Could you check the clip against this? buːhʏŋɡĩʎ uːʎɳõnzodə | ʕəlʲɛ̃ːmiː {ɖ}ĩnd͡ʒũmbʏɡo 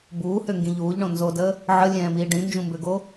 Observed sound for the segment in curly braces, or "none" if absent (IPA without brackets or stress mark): ɖ